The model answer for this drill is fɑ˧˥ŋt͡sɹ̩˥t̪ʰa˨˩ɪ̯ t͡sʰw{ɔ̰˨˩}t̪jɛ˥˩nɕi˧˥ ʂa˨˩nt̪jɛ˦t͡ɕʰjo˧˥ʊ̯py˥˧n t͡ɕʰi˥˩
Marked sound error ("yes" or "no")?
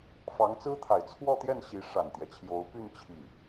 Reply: yes